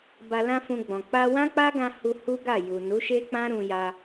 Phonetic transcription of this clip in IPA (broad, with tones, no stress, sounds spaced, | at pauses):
b a˧ l ã˦ f ũ˧ ɡ͡b ɔ̃˨ k͡p a˧ w ã˦ k͡p a˦ ɡ ã˧ h u˧ h u˦ ɡ a˦˨ j u˨ n u˨˦ ʃ e˦ k͡p ã˦ ɾ ũ˧ j a˧